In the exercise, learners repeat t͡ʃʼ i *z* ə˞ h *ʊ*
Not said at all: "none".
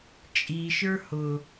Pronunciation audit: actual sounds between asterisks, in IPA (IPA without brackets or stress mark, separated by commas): ʃ, ʊ